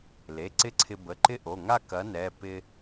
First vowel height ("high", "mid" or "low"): mid